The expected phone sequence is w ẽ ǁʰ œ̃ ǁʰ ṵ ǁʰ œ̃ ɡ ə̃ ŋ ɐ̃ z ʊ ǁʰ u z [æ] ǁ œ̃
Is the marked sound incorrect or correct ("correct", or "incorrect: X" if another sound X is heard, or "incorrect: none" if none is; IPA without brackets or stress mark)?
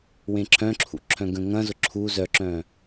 incorrect: œ